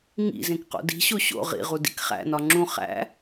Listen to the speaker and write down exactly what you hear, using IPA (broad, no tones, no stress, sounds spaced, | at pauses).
ŋ ḭ z ẽ k q o̰ d i̤ ɕ o ɕ o̰ ʁ ḭ ʁ u d ḭ k χ æ̰ n ɒ ŋ͡ǁ ũ χ æ̰